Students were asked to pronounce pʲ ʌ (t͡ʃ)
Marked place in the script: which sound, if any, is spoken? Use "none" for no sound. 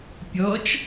t͡ʃ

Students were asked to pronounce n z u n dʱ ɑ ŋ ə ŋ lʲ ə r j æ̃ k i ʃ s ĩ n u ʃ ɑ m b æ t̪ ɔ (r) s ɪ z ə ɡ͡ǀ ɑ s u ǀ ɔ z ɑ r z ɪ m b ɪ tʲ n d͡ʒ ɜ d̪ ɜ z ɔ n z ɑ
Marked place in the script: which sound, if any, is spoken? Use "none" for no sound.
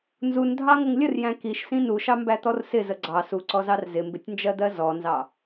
r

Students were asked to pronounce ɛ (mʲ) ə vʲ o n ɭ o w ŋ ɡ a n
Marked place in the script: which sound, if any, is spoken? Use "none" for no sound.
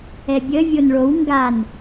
bʲ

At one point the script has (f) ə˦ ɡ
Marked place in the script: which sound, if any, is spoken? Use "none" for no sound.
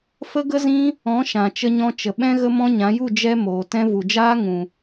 f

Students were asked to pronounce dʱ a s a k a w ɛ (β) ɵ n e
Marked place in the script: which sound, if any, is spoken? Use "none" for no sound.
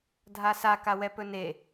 p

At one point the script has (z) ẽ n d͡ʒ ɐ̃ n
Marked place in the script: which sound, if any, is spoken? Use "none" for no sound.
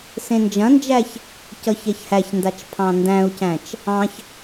s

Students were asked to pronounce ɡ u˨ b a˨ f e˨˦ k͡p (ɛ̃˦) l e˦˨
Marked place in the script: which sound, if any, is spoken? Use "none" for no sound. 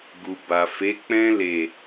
ɛ̃˦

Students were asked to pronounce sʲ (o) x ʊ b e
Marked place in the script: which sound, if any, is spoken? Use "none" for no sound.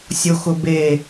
o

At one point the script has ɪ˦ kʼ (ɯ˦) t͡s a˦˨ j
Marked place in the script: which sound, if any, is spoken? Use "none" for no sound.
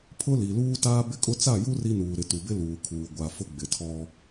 ʊ˦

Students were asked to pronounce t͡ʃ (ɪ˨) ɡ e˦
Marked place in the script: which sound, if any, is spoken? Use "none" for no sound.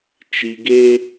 i˨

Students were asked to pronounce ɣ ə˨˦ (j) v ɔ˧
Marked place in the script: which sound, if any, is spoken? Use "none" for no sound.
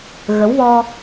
w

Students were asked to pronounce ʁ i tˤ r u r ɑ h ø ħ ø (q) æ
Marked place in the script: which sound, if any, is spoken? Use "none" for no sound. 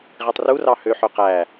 q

